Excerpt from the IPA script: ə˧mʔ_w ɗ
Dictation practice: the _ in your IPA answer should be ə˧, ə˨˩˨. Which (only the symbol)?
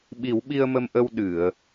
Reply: ə˧